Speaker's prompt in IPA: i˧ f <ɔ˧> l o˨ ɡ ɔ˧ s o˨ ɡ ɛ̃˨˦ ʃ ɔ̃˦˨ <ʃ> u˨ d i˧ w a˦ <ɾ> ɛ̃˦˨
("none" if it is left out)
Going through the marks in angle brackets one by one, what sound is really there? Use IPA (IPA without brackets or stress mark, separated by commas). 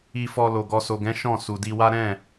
ɔ˧, s, ɾ